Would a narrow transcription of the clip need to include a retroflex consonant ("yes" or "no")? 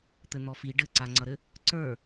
yes